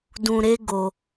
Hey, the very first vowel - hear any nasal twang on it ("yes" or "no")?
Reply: yes